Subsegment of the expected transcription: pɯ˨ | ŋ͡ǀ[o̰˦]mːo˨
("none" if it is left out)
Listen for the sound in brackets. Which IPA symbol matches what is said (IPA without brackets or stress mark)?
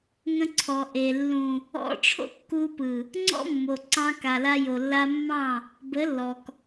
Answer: ɔ̰˦